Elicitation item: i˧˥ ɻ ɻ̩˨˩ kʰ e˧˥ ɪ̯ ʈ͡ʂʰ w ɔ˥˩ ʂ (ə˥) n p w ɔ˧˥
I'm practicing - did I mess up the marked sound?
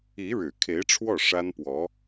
yes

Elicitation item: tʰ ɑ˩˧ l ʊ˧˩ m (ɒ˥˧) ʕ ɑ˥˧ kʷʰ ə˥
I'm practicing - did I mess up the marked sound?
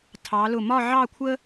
no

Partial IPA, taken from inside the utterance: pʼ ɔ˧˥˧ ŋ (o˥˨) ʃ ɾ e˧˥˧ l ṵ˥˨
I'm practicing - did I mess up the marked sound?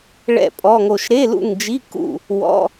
no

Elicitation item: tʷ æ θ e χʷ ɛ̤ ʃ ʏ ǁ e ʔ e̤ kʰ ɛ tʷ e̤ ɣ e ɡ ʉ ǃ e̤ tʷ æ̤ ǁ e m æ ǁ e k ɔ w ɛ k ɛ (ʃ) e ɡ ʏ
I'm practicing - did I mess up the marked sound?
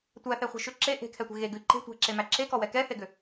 yes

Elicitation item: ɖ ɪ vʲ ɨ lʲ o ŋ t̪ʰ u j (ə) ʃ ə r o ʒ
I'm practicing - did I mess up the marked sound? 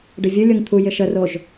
yes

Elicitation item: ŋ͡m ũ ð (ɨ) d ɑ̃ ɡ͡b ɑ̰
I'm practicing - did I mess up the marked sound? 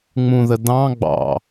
yes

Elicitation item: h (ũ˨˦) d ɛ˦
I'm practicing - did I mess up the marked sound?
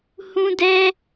yes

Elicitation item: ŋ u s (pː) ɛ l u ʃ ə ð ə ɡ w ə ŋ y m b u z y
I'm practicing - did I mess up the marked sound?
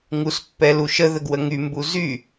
no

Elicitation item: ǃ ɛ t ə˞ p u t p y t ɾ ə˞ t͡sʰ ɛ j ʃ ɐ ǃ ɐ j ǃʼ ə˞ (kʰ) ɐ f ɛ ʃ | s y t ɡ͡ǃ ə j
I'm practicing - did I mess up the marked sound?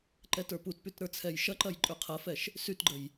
yes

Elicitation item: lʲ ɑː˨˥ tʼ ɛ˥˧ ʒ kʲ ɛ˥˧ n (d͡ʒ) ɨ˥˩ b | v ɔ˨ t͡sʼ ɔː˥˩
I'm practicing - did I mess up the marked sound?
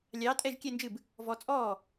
no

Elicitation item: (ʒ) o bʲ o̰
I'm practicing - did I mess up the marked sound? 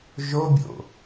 no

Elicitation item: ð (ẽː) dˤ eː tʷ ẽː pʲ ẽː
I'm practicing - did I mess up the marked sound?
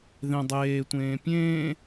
yes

